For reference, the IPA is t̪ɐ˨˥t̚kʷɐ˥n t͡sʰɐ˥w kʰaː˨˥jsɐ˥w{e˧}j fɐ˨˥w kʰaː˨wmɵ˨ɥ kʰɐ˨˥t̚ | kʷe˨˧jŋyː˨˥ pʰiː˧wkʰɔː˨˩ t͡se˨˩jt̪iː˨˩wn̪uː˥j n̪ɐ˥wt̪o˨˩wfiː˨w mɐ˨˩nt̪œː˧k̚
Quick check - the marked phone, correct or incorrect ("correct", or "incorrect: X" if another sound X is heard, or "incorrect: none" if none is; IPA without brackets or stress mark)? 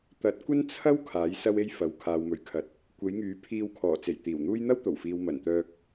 incorrect: e˥